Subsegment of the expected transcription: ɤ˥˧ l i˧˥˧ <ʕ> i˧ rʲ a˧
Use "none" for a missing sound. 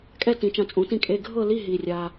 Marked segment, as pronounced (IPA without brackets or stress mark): ɦ